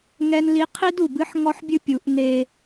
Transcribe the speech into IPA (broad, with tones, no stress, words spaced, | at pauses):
ŋɛ˦nli˦ qʰi˦du˨bɨ˦ħ ŋɔ˦ħbʲɨ˦ pʲu˨˦ʔ ne˦